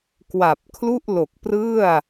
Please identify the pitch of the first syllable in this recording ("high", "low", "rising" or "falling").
low